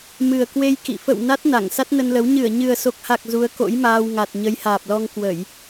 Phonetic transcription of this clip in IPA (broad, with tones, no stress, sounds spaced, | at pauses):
m ɨ˨˩ ə̯ k w e˧ j k ḭ˧˨ f ə̰˧˨ w n a˦˥ t̚ n a˧˩ ŋ s a˦˥ t̚ n ə˧ n l ə˨˦ w ɲ ɨ˧˩ ə̯ ɲ ɨ˨˩ ə̯ s o˨˩ k̚ h a˨˩ k̚ z u˨˦ ə̯ k o̰˧˥ j m aː˧ w ŋ a˨˩ t̚ ɲ ə˨˦ j h aː˨˩ p̚ l ɔ˧ ŋ k w ə˧˩˨ j